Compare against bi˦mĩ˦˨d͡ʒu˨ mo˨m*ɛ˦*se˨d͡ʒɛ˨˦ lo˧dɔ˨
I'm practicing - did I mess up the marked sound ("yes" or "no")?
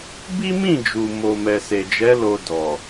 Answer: yes